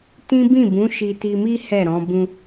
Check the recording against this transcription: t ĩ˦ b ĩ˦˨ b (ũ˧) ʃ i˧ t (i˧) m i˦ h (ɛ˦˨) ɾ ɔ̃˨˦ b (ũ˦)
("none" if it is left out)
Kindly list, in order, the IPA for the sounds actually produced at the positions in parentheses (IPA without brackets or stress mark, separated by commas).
ũ˨˦, i˧, ɛ˦˨, ũ˦